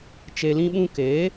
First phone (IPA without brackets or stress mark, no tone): t͡ʃ